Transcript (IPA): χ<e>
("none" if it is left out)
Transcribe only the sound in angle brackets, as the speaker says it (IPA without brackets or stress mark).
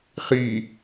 i